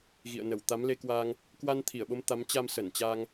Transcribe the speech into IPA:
ɣ ḭ˧˨ ə̯ n ə˧˩ w t̪ a˨˦ m l e˧ k w a˧ ŋ | k w a˧ n t̪ʰ i˧˩ ə̯ ɓ o˧ m t̪ a˨˦ m t͡ɕ a˧ m s ə˧˩ n t͡ɕ a˧ ŋ

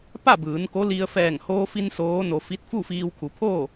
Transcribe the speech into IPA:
p a˥˨ b ɯː˩˧ n k o˧˥ l i˧ ə̯ f ɛː˧˩ ŋ h oː˧ f i˧ n s oː˧˥ n o˧ f i˧˥ t̚ f u˥˨ f iː˧ w kʰ u˩˧ pʰ oː˥˨

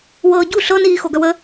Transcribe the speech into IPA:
w ɤː ɟ u ɬ ɤ n iː x o ɡ œ w ə

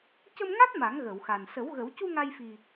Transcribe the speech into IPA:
c ə˧ m ŋ a˦˥ t̚ m a˨˩˦ ŋ ɣ ə˨˩˨ w x a˨˩ n s ə˨˩˦ w ɣ ə˨˩˦ w c u˧ ŋ a˧ j f i˨˩

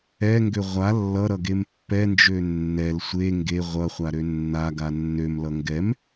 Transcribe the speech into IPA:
ɛ ŋ ɡ ø ʁʷ a lː ʌ ɾ ʌ ɡ e m pː ɛ n d͡ʒ ø nː ɛ l sʷ e ŋ ɡ e ʁʷ ʌ χʷ a ɾ ø nː a ɡ a nː ø m l ʌ ŋ ɡ ɛ m

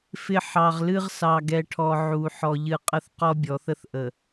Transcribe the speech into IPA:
f ɪ˨ ħ ɑ˨ ʁ l ɨ˦ ʁ s ɑ˨ ɡ ɛ˨ ʈʰ ɔ˨ ʕ u˨ ħ ɔ˨ ʎ ɨ˨ qʼ ə˦ θ q ɔ˦ bʲ ɔ˨˦ θ ə˦ θ ʔ ə˨

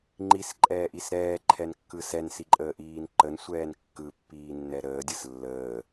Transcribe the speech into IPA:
ŋ͡ǃ i s ǃʼ ɛː ʔ i s ɾ ɛː ǃʰ ɛ n kː ɯ s ɛ n s i ǃʼ əː ʔ iː n ǃ ə n sʷ ɛː n kː ɯ pː iː nː ɛ ɾ əː dʲ ɯ s lː əː

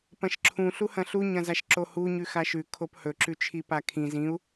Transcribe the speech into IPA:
p ɐ̃ ʃ ǁʰ ũ ɬ u h ɐ̃ ɬ u ɲ ɐ̃ z a ʃ ǁ o h u ɲ ʉ x a ʃ ʉ kʰ o p h ɵ ǁ ʉ t͡ʃʰ i p a kʰ ĩ z ĩ u̯

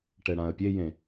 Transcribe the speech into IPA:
ʈ ɛ ɽ ã ə̯ pʲ e j ẽ

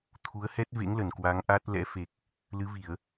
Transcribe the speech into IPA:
t̪ʰ u˨˦ ə̯ h ɛ˦˥ t̚ v ḛ˧˥ ŋ l ə˧˩ n k w a˨˦ ŋ ʔ a˦˥ t̚ l ɛ̰˧˥ f e˨˩ k̚ | l ɨ˨˦ v i˧˩˨ ə̯

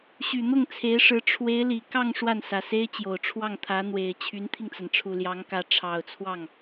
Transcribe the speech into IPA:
ɕ y˨˩ n̪ ʊ˥˩ ŋ t͡sʰ e˧˥ ɪ̯ ʂ ɻ̩˧˥ ʈ͡ʂʰ w e˧˥ ɪ̯ l i˨˩ k ɑ˥˧ ŋ ʂ w a˥˩ n s ä˨˩ s e˥ ɪ̯ t͡ɕ j o˨˩ ʊ̯ ʈ͡ʂʰ w ɑ˥˩ ŋ t̪ʰ ä˧˥ n̪ w e˨˩ ɪ̯ t͡ɕʰ y˧˥ n t̪ʰ i˧ ŋ t͡s a˩ n ʈ͡ʂʰ u˨˩ l j ɑ˧˥ ŋ k ä˧˥ ʈ͡ʂʰ ɑ˨˩ ʊ̯ t͡sʰ w ɑ˥˩ ŋ

